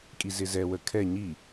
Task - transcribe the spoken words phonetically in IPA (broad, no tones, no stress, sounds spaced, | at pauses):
kʼ i z ɪ z ɛ w ə kʰ ɛ ɲ i